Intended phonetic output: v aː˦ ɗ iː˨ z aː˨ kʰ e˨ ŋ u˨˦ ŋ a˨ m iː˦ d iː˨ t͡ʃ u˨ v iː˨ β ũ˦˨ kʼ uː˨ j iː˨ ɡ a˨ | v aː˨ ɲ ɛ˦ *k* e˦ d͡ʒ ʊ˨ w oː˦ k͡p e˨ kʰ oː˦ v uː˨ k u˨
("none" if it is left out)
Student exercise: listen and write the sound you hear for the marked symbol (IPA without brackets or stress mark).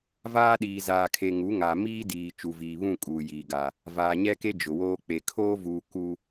k